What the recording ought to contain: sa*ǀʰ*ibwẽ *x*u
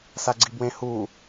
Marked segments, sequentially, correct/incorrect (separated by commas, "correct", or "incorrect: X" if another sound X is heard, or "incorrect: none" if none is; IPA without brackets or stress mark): incorrect: ɡ͡ǀ, incorrect: h